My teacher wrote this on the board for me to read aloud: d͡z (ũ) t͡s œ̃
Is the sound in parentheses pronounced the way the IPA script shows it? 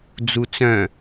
no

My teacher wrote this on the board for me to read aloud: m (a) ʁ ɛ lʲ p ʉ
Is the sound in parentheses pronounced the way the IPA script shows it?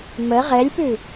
no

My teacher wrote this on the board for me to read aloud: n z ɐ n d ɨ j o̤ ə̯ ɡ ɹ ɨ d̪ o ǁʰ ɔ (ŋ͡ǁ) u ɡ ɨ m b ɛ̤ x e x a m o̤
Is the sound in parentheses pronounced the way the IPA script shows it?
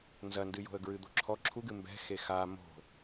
no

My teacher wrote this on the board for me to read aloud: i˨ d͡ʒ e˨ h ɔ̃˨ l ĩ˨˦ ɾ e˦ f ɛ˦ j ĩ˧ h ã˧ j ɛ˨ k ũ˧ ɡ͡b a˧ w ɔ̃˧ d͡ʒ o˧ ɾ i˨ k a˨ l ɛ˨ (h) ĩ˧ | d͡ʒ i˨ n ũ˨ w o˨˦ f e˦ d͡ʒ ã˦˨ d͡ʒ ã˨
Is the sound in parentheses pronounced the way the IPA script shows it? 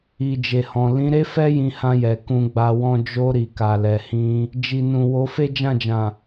yes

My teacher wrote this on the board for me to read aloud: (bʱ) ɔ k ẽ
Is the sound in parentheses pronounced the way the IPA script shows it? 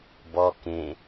no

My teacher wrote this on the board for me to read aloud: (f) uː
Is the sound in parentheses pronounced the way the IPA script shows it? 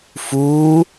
yes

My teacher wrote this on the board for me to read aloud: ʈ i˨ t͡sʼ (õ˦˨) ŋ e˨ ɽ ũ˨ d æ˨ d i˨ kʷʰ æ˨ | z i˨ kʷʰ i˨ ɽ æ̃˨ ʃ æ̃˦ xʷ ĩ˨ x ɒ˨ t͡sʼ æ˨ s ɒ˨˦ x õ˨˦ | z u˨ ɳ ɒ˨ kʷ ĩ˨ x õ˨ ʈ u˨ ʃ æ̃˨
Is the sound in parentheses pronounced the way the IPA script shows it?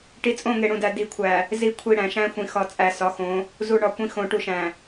yes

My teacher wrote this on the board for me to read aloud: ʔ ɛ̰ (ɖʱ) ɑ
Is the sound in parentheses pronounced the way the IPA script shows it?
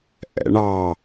no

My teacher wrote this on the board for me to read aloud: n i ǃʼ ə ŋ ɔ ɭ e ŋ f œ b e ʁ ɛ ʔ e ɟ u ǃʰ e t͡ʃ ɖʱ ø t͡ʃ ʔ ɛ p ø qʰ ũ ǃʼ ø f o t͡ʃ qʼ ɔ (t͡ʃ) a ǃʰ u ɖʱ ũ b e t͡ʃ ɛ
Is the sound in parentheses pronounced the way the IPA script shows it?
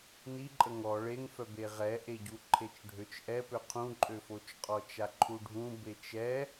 yes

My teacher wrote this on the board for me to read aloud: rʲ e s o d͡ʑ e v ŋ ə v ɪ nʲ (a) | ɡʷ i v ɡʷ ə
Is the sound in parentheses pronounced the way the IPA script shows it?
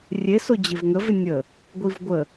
no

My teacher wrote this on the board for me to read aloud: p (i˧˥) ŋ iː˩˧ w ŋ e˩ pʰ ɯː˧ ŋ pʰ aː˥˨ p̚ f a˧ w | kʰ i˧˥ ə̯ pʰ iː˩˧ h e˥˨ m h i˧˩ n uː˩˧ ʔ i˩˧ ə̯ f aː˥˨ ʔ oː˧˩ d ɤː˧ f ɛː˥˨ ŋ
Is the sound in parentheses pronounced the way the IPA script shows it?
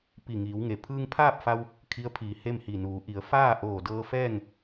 no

